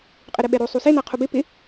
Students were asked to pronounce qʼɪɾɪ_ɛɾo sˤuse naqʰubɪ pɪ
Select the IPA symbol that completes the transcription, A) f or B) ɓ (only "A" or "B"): B